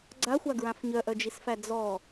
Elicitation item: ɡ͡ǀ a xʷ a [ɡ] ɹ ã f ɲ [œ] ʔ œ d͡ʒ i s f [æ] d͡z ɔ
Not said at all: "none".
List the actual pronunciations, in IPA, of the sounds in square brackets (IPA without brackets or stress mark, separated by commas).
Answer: ɡ, œ, æ